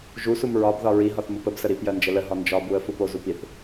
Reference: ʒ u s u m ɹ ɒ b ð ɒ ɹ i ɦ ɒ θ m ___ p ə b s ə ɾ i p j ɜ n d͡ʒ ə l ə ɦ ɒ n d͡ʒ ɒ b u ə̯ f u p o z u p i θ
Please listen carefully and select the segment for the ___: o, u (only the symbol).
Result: u